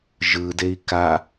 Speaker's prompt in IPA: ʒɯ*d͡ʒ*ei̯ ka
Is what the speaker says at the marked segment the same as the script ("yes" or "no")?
no